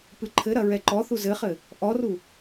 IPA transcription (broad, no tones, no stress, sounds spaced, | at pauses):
p ɨ ǃʰ ɘ ɾ ɐ ɹ ɛ ǃ ɔ θ u z ɘ χ ɘ | ʔ ɔ r u